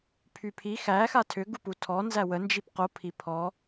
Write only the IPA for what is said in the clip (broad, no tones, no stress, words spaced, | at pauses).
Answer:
pʰypʰi xæ xatʰʏ ɡuputʰɔ nzæwə nd͡ʒipqo pʰipʰɔ